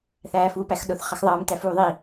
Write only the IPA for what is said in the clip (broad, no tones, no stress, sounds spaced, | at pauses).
θ æː f uː p æ x ɗ ʊ θ χ ʌ x ðˤ ʌː m t æ f uː ðˤ i